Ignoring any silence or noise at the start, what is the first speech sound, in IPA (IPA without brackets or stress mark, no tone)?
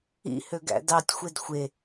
ḭ